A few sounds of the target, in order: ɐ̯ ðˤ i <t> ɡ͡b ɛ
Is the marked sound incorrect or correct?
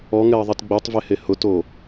correct